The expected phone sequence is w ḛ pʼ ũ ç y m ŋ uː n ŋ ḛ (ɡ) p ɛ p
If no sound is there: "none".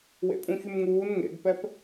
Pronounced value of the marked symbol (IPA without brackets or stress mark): ɡ